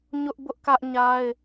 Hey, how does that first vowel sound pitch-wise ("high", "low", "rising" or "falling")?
high